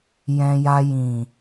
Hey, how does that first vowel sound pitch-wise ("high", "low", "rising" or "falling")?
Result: low